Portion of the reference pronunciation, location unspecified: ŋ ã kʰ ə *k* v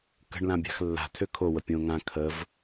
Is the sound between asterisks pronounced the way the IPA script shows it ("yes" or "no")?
no